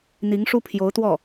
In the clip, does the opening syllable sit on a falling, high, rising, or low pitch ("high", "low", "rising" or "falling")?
rising